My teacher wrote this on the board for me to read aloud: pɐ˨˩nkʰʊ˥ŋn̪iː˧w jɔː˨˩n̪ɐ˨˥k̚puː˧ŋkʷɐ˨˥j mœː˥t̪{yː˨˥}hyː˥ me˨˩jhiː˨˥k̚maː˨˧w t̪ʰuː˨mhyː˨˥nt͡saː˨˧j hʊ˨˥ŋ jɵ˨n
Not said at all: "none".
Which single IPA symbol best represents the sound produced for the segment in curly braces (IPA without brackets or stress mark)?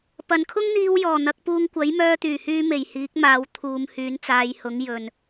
yː˨˩